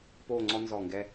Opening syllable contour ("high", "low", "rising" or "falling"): falling